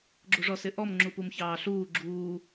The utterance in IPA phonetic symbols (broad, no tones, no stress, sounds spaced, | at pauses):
ɡ͡ǁ u ʐ ɔ s ɪ ʔ ɔ m ŋ͡ǁ u p u m ç ɑː ɬ uː ɡ͡ǁ uː